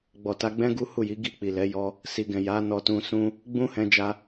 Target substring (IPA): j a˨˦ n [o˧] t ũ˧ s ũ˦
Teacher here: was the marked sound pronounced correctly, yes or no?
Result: no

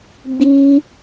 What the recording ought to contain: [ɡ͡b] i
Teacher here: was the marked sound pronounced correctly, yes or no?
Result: yes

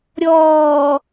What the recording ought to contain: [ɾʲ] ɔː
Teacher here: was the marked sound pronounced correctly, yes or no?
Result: yes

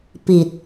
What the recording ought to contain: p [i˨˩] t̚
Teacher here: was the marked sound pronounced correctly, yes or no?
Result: yes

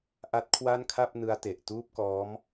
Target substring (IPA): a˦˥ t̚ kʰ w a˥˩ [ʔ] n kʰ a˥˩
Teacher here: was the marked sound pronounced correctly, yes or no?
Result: no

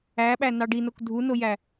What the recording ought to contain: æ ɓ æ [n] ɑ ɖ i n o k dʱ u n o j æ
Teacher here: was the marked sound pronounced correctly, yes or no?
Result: yes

